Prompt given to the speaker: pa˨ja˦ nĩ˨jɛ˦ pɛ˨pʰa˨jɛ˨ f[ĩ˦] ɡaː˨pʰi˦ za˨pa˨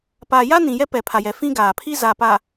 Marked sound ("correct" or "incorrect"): correct